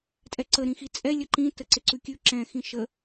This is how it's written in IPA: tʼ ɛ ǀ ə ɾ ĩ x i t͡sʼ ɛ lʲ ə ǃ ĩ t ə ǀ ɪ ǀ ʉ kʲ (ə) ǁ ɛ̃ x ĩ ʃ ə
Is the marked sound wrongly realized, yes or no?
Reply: yes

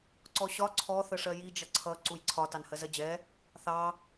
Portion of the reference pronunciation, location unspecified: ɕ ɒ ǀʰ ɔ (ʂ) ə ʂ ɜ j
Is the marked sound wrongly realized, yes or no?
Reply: yes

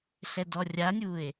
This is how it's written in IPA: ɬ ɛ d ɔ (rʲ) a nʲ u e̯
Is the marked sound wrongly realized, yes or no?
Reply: no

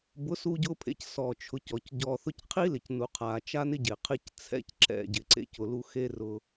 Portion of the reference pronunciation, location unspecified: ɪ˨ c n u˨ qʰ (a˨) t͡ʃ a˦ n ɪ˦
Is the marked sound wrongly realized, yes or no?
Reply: no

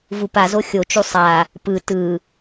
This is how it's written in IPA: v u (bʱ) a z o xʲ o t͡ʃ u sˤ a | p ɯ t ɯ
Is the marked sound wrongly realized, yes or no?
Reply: yes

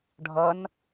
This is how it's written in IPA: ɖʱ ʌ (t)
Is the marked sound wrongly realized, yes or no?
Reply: yes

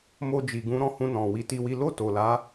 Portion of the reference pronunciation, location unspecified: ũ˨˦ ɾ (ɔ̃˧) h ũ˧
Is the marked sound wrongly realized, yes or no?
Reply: no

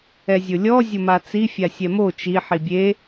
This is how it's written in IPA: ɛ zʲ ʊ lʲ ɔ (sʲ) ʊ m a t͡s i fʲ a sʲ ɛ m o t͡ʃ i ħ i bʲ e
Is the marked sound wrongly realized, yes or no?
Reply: yes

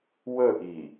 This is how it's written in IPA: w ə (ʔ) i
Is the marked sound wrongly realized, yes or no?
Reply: no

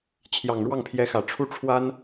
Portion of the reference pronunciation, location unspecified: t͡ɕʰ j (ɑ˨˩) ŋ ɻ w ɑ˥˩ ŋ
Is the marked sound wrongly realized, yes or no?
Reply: no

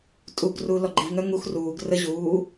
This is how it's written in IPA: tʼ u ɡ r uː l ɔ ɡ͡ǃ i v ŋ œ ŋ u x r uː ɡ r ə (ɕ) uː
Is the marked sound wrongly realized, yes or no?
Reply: yes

